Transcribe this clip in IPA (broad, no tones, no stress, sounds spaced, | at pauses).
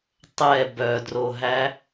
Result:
tˤ ɛ b œ d r o ɦ æ